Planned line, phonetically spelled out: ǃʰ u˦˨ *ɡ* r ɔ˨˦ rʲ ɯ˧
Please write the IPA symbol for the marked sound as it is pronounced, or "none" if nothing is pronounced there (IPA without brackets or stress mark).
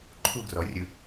ɡ